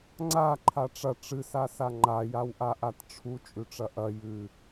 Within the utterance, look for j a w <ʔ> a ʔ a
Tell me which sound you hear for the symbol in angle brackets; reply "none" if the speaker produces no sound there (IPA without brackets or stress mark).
ʔ